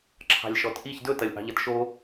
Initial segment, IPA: ǁʰ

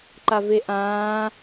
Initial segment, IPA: ǃ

